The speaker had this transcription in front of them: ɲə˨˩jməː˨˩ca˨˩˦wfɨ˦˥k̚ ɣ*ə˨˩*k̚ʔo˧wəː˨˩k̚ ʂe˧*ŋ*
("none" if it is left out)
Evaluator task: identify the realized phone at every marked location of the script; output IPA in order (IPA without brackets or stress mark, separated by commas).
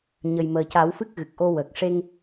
ɨ˨˩, ŋ